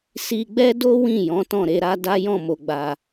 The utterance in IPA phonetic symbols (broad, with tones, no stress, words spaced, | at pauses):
si˧ɡ͡bɛ˦do˦ wĩ˦˨ jɔ̃˨˦tɔ̃˦˨ɾe˧ɾa˦ da˦jɔ̃˦˨mo˨ɡ͡ba˨